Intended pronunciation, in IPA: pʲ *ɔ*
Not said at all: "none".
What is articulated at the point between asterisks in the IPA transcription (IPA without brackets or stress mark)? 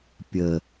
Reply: ə